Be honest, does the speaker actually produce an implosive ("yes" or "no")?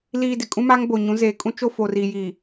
no